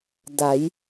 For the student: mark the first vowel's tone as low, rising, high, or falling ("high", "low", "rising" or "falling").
rising